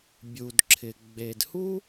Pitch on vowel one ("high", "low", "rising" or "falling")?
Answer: low